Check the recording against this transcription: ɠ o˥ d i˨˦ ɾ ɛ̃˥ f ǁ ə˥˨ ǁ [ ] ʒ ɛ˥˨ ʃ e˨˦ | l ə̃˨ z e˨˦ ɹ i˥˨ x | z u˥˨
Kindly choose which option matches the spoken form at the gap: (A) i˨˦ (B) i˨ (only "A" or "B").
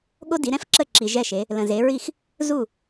B